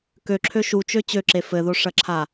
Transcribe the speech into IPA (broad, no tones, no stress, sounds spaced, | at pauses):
k ø ǁʰ ø ʃ u t͡ʃ ø t͡ɕ ø ǁ e f ɘ ð o ʂ ɐ ǁʰ a